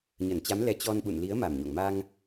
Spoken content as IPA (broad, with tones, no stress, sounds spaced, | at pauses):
ɲ ə˧˩ n t͡ɕ a˨˦ m l ɛ˨˦ t͡ɕ ɔ˧ n ɓ ṵ˧˨ n l i˨˦ ə̯ m a˨˩ m ɲ o̰˧˨ ŋ m a˧ ŋ